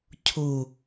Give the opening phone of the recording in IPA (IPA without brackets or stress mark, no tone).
cʰ